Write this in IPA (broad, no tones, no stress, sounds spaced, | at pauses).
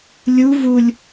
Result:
lʲ u v u lʲ